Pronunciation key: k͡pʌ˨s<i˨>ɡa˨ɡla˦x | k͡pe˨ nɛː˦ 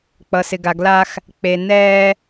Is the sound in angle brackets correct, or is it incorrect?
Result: incorrect